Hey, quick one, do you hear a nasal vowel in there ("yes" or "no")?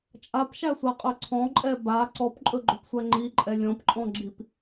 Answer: yes